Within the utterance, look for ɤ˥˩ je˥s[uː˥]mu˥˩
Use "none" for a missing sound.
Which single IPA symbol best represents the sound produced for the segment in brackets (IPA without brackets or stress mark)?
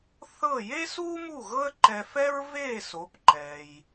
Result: uː˥